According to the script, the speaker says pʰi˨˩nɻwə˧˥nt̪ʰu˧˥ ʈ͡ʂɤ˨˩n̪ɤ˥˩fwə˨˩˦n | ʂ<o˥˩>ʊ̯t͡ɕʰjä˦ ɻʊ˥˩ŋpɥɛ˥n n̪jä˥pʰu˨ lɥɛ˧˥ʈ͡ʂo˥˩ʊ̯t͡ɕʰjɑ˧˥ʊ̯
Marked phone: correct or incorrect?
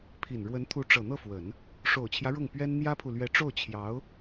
incorrect: o˨˩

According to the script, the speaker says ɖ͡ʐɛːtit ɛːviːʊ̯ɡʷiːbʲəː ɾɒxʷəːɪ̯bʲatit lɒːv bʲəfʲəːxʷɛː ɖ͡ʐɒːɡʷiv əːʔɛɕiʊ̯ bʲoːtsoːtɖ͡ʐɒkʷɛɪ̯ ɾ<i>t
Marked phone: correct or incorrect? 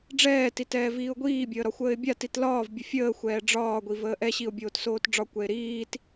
incorrect: iː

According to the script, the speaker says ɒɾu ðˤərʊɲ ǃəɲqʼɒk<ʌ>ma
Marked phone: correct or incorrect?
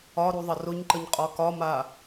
incorrect: ɒ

